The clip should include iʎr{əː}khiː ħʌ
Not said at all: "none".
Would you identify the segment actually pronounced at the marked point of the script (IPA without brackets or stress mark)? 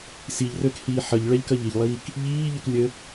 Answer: əː